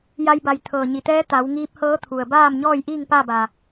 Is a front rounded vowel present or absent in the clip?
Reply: absent